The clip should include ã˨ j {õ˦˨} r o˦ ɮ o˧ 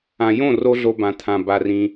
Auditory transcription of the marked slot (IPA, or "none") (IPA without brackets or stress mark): õ˦˨